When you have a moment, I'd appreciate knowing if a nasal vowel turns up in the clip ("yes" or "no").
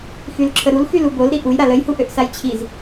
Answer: no